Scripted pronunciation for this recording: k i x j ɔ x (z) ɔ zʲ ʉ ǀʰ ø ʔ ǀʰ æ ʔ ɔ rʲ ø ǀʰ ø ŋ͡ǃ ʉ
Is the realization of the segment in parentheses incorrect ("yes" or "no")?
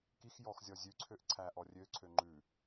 yes